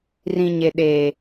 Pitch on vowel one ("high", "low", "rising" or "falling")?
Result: high